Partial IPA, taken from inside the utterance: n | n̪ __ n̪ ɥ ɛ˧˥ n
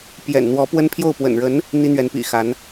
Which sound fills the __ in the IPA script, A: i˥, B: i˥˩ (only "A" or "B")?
A